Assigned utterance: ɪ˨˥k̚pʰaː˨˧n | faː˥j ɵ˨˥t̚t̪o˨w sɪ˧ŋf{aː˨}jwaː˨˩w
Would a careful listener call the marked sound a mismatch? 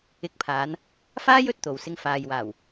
no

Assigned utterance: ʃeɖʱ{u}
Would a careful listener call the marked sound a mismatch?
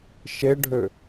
yes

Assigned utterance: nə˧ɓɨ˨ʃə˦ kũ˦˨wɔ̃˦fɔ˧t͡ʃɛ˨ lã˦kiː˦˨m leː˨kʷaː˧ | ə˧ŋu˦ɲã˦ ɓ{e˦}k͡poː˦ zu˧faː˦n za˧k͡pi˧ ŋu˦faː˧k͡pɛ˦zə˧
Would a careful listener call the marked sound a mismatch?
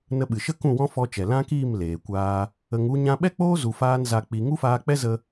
yes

